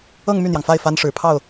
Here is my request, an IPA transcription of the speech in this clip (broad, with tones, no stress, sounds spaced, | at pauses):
ɤ˥˧ ŋ m y˥˩ n̪ j ɑ˩ ŋ f a˥˩ ɪ̯ f a˥ n ʂ ɻ̩˨˩ pʰ ɑ˥˩ ʊ̯